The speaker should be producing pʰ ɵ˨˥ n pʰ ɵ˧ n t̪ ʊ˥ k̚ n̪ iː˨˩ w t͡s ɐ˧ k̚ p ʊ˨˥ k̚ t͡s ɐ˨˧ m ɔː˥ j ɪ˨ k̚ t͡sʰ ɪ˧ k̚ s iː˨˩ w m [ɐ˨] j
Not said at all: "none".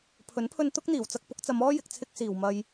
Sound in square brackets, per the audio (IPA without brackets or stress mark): ɐ˨